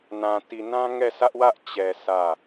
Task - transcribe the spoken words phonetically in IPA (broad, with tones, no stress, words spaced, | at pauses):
nã˨ti˨nã˦ ŋɛ˦˨ sä˦ʔwä˦ʔ t͡ɕɛ˨ sä˦˨